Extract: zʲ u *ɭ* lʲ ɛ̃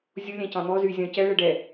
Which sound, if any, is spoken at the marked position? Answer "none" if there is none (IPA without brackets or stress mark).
none